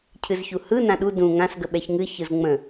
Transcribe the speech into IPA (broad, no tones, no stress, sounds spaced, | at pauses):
cʰ ɨ z ç u h ɯ n ã ɗ u d ũ ŋ ã s ɡ ə ɓ ɛ ç ŋ ɨ ç ɯ z ŋ͡m ə̃